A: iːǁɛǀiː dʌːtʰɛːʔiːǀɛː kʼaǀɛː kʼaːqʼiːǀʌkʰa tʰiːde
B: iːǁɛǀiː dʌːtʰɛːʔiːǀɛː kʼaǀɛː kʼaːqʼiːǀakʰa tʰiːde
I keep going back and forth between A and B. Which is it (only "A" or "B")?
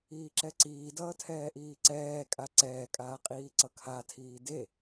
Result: A